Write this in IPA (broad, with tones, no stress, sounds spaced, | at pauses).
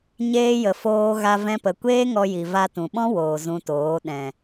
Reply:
ɲ eː˧ j ə˨ f oː˧ ɣ a˧ v ɛ̃˧ p ə˨ kʷ eː˦ ŋ ɔ˧ j i˨ v a˧ t ũ˨ ɓ ɔ̃˦ w oː˨ z ũ˧ t oː˨˦ ɗ ɛ̃˨